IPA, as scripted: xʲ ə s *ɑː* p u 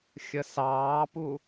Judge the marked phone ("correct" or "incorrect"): correct